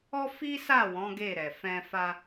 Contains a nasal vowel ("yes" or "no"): yes